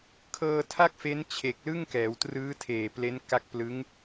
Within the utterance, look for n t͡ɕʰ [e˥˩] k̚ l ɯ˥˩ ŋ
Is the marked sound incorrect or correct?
incorrect